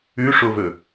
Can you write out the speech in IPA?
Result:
ʉ ʂ o v ɵ

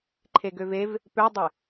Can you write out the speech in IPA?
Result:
ǃʰ e ɡ ø v e v | p ø dˤ e

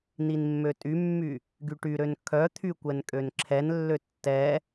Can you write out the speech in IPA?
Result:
n i n mː ø tʼ y mː y | ɡ y ʈ y ɾ ø n kʰ œ t̪ʰ y kʷ ɛ n kʼ ø n ǁʰ ɛ n lː ø tː ɛ

